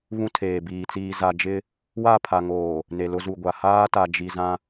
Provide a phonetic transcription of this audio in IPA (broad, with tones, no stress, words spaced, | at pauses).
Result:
βũ˦tʰeː˨biː˨ t͡siː˨ za˨ d͡ʒɪ˦ | wa˦˨pʰa˨ŋoː˨ | ne˨lʊ˦zu˨ɡʷa˨ haː˦ta˨ d͡ʒi˨zã˦